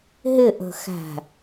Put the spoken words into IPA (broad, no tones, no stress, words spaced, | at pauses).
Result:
ɦɪʔə̤ xæ̤